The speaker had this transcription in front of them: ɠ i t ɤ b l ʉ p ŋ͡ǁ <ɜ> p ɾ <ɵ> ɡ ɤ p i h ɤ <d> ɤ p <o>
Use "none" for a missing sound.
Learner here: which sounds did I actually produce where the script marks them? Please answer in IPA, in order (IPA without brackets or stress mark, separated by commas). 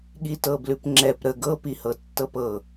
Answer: ɛ, ə, tː, ɤ